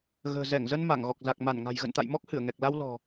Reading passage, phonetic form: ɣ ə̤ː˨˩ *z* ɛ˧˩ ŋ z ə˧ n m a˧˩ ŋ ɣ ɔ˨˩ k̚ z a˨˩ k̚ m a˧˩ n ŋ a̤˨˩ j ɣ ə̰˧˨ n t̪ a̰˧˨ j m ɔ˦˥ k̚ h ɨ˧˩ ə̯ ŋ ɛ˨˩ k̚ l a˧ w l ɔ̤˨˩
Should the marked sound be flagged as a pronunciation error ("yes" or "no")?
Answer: no